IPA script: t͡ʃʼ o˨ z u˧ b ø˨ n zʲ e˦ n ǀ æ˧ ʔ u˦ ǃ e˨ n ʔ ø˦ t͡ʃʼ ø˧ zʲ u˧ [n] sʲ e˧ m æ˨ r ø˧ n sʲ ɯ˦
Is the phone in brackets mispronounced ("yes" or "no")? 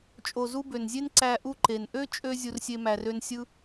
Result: yes